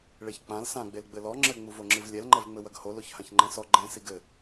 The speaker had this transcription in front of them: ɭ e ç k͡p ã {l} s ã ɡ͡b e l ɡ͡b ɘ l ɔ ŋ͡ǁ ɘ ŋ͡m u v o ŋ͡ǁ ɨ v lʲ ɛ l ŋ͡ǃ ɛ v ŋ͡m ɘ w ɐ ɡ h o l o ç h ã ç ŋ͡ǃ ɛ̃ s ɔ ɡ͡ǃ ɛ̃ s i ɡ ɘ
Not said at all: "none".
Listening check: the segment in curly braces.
l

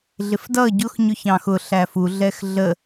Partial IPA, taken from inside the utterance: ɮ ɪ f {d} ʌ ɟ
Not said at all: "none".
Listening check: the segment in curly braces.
d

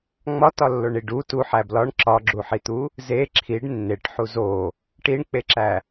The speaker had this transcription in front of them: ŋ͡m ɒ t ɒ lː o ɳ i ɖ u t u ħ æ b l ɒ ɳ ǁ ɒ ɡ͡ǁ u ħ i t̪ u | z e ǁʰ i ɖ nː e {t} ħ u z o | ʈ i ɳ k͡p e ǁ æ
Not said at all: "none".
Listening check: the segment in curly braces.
ʈ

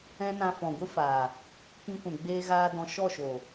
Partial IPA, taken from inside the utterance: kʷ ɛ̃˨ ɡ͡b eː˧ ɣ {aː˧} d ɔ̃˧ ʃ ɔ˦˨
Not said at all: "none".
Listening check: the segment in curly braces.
aː˧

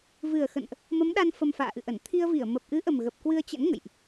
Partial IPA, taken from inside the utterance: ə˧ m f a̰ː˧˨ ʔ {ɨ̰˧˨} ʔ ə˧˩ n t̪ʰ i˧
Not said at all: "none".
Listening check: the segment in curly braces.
ɨ̰˧˨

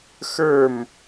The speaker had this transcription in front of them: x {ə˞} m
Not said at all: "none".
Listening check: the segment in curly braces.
ə˞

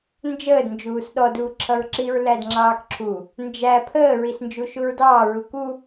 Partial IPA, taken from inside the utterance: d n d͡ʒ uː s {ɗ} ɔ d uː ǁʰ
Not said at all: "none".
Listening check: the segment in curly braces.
ɗ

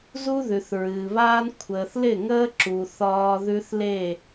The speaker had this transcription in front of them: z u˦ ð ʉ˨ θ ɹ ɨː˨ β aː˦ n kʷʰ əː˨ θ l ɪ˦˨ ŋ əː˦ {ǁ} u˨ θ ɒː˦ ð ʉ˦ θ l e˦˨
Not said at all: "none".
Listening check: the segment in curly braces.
ǁ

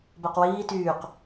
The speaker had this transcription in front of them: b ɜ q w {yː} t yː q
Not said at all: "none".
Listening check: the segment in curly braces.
iː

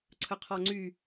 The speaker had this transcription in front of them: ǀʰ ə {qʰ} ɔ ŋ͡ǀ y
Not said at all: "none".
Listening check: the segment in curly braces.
qʰ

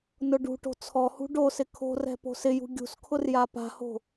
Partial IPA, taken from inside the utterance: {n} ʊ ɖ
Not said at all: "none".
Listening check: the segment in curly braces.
n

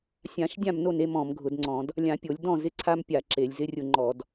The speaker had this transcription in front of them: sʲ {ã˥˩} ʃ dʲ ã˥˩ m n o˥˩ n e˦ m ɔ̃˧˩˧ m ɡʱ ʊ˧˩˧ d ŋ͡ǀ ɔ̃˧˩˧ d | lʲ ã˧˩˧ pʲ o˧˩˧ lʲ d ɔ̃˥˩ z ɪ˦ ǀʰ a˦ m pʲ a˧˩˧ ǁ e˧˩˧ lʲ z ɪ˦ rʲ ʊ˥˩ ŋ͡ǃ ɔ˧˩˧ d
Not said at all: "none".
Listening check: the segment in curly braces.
ã˧˩˧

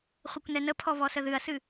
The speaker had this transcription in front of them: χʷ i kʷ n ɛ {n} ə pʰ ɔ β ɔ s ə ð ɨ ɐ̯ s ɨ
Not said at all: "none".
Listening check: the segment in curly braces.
n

